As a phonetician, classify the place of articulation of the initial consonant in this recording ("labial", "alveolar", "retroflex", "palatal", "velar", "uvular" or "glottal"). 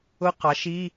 uvular